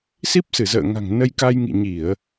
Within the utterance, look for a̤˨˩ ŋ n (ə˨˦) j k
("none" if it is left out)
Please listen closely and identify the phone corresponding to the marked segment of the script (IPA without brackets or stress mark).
ə˧